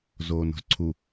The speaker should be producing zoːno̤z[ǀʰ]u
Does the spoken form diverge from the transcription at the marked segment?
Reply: no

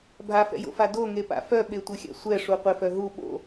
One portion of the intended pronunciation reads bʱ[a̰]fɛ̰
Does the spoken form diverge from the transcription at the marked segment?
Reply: yes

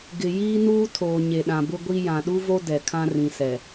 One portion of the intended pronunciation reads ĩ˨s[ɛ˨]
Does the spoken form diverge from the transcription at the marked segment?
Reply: no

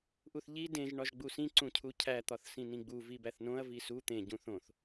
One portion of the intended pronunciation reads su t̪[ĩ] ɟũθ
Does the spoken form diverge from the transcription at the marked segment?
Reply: yes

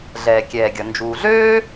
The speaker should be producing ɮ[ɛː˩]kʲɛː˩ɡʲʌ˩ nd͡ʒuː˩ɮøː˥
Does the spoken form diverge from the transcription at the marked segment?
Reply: no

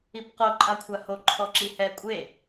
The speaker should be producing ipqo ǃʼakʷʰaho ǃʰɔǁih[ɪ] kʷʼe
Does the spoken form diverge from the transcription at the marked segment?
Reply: yes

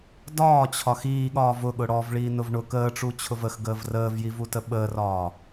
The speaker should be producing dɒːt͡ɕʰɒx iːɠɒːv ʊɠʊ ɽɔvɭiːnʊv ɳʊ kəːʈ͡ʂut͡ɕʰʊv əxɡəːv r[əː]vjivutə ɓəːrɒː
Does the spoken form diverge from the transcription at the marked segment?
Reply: no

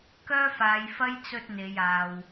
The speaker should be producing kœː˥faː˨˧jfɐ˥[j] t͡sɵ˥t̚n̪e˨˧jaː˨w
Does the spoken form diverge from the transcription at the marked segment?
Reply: no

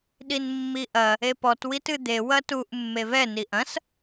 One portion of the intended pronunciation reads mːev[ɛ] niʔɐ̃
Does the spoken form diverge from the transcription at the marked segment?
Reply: no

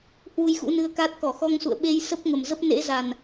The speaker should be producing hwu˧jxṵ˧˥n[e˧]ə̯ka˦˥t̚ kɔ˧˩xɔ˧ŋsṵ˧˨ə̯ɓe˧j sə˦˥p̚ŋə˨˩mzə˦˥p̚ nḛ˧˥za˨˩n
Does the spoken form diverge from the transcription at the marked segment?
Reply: yes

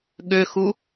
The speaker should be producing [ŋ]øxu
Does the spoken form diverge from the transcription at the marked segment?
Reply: yes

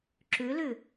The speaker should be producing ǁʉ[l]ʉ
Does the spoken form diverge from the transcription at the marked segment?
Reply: no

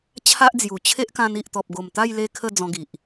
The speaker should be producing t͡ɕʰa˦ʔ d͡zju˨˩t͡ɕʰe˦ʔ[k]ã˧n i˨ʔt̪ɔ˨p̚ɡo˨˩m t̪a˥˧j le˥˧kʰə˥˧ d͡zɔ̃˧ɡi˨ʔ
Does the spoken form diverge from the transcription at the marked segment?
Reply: no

